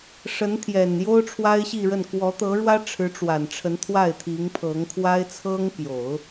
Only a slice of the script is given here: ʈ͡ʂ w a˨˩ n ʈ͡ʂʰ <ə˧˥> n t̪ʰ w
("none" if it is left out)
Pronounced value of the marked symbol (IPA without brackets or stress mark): ə˧˥